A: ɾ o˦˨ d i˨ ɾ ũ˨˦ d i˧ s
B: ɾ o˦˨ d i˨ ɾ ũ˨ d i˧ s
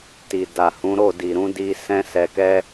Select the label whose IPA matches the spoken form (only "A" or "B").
A